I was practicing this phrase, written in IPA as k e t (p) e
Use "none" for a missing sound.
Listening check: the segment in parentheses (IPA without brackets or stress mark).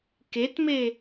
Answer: m